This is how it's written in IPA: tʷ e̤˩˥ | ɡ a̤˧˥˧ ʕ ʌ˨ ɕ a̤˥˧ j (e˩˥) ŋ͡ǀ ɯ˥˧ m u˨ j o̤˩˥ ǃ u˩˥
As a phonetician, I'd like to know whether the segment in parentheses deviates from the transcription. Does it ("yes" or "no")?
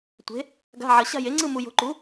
no